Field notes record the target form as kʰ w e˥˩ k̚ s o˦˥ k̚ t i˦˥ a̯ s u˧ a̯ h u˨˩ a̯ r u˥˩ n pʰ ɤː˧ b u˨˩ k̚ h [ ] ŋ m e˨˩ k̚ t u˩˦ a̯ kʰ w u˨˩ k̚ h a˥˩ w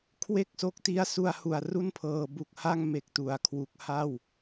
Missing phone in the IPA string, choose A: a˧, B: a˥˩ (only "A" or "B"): B